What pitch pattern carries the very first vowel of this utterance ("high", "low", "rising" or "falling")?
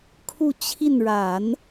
falling